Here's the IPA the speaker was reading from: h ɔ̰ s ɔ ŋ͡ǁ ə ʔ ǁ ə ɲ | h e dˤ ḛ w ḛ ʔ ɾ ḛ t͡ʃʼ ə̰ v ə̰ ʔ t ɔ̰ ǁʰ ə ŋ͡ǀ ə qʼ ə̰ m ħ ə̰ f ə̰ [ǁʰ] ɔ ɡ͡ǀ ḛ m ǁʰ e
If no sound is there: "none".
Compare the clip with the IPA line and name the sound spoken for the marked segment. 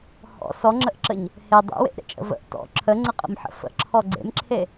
ǁʰ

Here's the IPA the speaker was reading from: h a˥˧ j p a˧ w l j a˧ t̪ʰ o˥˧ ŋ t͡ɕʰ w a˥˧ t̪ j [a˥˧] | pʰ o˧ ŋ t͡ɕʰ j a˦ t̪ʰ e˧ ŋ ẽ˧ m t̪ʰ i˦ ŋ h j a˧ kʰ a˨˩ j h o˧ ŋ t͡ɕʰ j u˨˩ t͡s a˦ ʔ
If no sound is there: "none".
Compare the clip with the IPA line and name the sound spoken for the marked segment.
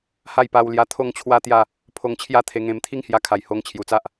a˥˧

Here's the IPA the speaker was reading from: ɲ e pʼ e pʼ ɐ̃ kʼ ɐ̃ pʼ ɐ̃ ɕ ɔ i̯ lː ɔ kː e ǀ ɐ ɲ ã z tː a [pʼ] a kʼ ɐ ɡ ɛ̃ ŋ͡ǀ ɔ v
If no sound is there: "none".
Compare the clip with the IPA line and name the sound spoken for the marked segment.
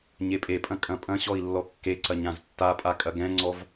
pʼ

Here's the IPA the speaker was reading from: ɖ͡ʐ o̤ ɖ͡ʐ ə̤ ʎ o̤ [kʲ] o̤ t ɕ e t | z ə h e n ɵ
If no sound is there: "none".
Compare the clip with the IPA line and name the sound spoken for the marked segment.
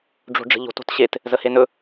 t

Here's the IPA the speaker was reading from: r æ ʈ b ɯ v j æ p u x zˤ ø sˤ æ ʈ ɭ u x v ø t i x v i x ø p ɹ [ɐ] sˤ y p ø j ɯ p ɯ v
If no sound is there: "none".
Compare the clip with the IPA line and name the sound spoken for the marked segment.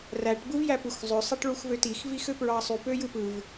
ɑ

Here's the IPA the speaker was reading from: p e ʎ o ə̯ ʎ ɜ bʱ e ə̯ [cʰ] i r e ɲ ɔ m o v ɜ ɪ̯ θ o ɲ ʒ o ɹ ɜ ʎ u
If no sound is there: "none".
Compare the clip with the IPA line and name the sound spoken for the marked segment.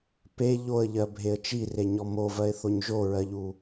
t͡ʃ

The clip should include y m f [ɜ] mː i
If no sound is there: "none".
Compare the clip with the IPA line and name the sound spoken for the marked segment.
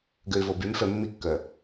ɛ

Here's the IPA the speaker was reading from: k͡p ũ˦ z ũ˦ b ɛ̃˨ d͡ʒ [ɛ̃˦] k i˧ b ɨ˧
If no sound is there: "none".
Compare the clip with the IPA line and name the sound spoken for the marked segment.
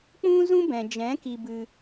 ɛ̃˨˦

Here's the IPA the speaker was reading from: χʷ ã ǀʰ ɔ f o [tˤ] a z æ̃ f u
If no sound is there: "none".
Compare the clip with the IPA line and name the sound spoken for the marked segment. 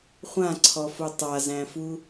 tˤ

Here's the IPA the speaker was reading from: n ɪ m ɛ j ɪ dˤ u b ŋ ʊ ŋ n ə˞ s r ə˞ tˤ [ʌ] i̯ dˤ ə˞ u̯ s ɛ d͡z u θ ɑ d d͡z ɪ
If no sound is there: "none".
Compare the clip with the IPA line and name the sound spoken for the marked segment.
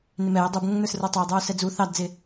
ʌ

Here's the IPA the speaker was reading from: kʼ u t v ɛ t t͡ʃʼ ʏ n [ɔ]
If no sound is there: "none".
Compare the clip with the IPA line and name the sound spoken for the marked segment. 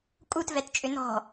ɔ̤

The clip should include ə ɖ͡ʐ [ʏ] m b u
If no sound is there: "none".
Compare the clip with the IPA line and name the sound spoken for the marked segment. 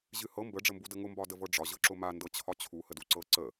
ə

